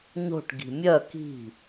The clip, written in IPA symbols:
ɲo̤ʈ ɡi̤mʲœ ki̤

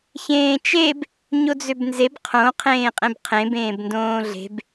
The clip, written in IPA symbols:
çẽːt͡ʃeb | ɲod͡zøbnzeb qʰõ qʰẽːqʼẽbqʰẽ bẽːbndõːɮe̤b

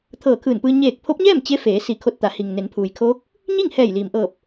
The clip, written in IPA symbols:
t̪ʰɤː˧˩ kʰɯː˧˩npɯː˧ ɲeː˧˩k̚ pʰo˧˥p̚ɲɛː˥˨m t͡ɕe˧˥feː˩˧ si˧˩kʰo˧t̚t̪a˩˧ hi˩ŋne˩˧npʰuː˩jkʰoː˧˥k̚ | ɲi˥˨ŋhɛː˧˩jliː˩mʔɤː˧˩p̚

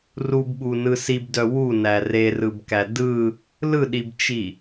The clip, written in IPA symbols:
rubɓunɯ sibdœ wunæ rerɯbkæ dɯ | lɯɗibt͡ʃi

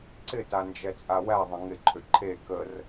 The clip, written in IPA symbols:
ǀɪta nd͡ʒɛt͡sʼawæðˤə̃ ŋɪǃʰʏ ǃʰe kər

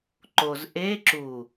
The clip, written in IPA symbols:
ǃoz ʔe ǁu

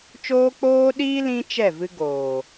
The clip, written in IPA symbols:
t͡ʃoː˦k͡poː˦ɗiː˦ lĩ˦ t͡ʃɛ˦˨vɨ˧ ɡoː˨

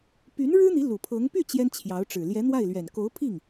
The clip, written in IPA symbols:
py˧˥n ɻɻ̩˥n̪i˧˥ lu˨˩pʰɤ˧˥ŋ py˥˩ t͡ɕjɛ˥nt͡ɕʰjɑ˧˥ʊ̯ʈ͡ʂɻ̩˨˩ ljɛ˧˥n̪wa˥˩ɪ̯lɥɛ˨˩n ko˧˥ʊ̯pʰi˥˩ŋ

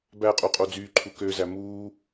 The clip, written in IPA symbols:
bæqʼu qʼod͡zyːǃʰu køzæ muː

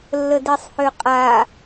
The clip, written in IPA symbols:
lːədisˤhøqʼa

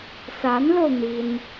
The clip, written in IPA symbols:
sa˧˥nlo˧ʊ̯ n̪i˥n

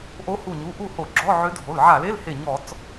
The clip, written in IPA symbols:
ʔo˧˥hu˧˩ɲu˩˧˩ ʔu˥˩ho˧˩˧ɡ͡ǁɔ˧˥˧ ʕø˧˥dʱo˩˧˩l ʕa˧˩˧l e˧˥˧lhe˧˩ ɲɔ˧˩˧t͡s

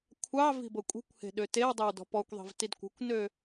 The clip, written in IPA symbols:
kʷʰɑ vi̤bɤkʷʼi̤kʷhe̤ ɗøtewdˤøw dɔ̤pɔkʷðˤi̤v tidkʷə̤kʷnø

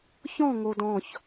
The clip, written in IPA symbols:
çɔ̃ ŋodɔ̃ç

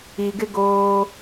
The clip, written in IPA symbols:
i˨ɡɪ˦ ɡoː˦

